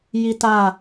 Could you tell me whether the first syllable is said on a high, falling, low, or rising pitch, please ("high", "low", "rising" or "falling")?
high